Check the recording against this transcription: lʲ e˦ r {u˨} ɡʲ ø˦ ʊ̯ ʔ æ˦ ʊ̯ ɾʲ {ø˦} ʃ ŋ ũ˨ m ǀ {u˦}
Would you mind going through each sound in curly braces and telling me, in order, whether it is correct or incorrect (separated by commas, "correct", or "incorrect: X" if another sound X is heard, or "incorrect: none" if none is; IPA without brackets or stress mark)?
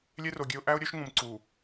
incorrect: o˨, correct, incorrect: u˨